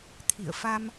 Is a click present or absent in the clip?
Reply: absent